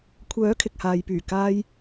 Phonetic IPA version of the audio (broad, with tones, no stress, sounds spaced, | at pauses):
kʷʰ œː˨˥ kʰ ɪ˨ k̚ h aː˨ j p yː˨˩ k aː˧ j